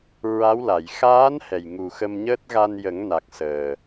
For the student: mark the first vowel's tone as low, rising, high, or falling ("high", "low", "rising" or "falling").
rising